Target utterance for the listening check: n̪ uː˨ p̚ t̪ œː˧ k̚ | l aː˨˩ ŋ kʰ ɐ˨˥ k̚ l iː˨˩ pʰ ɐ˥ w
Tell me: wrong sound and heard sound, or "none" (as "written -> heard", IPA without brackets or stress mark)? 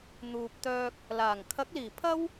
none